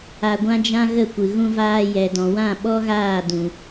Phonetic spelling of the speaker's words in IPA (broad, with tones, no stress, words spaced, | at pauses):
a˧ɡʷã˦d͡ʒã˦ɣə˦˨ kʷɨ˨ɣũ˧vaː˧ jɛ˨dɔ̃˨wã˦˨ ɓɔ˦ɣaː˦˨dũ˨